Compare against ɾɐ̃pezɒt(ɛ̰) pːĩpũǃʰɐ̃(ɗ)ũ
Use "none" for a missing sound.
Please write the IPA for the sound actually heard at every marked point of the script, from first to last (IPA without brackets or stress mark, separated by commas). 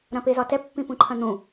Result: ɛ, n̪